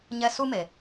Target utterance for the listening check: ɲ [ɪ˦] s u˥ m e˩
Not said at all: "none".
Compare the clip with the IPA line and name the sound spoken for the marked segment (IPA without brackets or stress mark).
ɛ˦